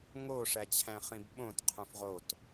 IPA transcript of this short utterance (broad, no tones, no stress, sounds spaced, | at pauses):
ŋ o ʂ æ t͡ɕʰ æ̃ χ ĩ b ɓ õ t qʰ ũ f ʁ o t